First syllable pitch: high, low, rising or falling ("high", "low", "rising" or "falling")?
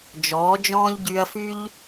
rising